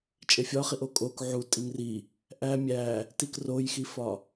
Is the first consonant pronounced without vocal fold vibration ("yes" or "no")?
yes